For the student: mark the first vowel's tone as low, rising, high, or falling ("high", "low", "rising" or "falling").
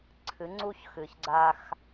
rising